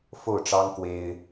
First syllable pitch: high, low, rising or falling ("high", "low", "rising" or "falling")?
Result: falling